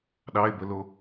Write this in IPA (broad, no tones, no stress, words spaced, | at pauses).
ɗɑe̯bəlo